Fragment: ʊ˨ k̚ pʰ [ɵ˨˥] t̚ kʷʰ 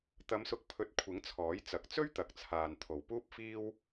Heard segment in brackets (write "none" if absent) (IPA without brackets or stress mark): ɵ˧